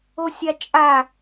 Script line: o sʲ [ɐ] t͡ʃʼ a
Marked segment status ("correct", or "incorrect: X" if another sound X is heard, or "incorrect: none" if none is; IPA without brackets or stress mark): incorrect: a